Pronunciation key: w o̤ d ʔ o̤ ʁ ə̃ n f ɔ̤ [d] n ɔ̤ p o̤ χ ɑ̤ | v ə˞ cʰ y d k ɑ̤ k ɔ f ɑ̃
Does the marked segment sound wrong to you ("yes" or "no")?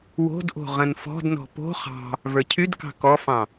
no